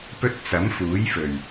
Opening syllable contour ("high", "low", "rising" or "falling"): high